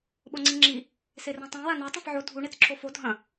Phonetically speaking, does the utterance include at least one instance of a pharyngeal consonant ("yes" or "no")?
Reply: yes